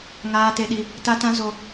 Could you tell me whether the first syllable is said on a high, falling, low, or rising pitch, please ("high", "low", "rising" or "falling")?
high